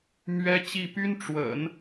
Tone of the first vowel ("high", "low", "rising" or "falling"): high